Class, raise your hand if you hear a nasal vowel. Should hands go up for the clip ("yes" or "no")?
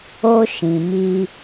yes